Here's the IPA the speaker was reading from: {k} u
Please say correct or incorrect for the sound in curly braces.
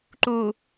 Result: incorrect